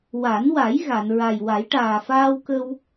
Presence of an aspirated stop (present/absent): absent